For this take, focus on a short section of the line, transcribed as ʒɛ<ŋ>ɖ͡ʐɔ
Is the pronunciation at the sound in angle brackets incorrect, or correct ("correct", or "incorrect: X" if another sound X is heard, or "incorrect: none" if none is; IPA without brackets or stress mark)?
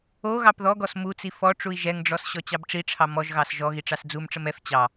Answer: correct